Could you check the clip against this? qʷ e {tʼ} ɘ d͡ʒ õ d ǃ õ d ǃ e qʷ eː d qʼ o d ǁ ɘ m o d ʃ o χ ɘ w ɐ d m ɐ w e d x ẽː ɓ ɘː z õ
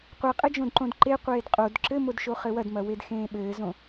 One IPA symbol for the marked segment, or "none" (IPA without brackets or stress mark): qʼ